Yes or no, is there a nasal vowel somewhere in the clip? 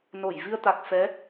no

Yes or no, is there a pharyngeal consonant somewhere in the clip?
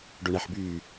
yes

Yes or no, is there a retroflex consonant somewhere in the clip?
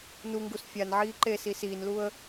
no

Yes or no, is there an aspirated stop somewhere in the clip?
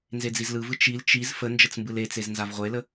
no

